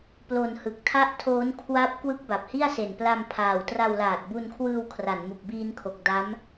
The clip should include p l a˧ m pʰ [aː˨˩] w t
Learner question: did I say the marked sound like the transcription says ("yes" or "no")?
yes